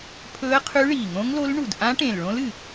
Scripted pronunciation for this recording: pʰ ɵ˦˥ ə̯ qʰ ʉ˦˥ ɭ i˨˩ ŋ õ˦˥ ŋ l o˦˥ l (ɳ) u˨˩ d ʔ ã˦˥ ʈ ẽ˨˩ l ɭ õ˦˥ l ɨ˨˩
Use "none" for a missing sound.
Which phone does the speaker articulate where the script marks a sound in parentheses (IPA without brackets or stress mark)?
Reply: ɳ